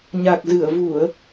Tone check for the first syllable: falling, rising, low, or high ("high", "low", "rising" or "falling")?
low